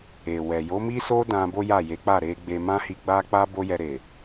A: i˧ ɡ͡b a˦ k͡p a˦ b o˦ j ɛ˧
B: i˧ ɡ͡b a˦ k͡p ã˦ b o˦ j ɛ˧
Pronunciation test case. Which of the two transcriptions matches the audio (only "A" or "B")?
A